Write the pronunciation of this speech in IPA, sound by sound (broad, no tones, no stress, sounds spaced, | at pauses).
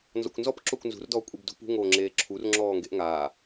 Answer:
n z ɔ̰ kʷ n z ɔ p ǁ o kʷ n z ṳ r d ɔː kʷʼ i b d ṳ p ṳ ŋ oː ŋ͡ǁ eː ǁʰ u r ŋ͡ǁ ɔː ŋ ɡ e ʔ ŋ aː